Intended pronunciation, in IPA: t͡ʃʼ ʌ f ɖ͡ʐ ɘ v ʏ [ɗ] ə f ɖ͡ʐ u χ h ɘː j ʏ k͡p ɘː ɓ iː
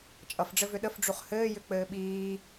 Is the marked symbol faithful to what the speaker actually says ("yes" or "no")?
yes